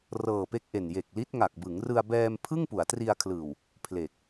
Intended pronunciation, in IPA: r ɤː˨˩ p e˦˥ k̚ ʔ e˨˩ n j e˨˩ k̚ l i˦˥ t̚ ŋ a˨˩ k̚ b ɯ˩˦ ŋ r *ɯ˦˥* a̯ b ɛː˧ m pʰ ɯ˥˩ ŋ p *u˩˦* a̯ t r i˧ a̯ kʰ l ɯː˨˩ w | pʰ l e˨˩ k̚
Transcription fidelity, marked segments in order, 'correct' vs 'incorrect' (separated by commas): incorrect, correct